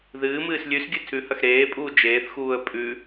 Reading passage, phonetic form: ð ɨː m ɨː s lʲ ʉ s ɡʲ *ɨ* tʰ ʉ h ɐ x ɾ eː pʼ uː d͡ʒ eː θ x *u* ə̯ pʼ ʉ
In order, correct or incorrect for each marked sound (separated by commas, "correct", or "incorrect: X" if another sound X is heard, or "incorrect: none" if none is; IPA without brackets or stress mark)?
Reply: correct, incorrect: uː